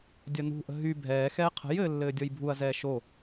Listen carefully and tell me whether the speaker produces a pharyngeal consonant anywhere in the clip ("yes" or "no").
no